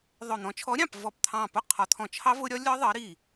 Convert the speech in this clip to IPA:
ðˤ ʊ˧˩ n̪ ɔ̃˨˦ t͡ʃʰ ɔ˨˦ ɾʲ ɑ̃˧˩ p v ɔ˧˩ p t̪ʰ ɑ̃˧˩ p ʊ˦˥ qʰ ɒ˨˦ t̪ʰ ɔ̃˧˩ t͡ʃʰ ɑ˦˥ v ʊ˦˥ ɾʲ ɒ˦˥ lʲ ɒ˦˥ ðˤ ɜ˨˦ ɾ i˧˩

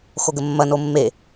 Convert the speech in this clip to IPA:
x o ɡ ə mː ɐ n o mː e

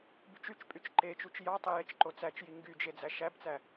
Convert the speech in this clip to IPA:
b y t͡ʃ y t͡ʃ pʼ y t͡ʃ ǃ e t͡ʃ u t͡ʃ j ɑ tˤ i j e t͡ʃ ǃ o t͡s æ t͡ʃ j i ŋ ɡ y d͡ʒ e d͡z æ ʃ æ b t͡s æ

